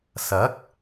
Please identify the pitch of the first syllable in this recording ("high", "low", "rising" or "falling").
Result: rising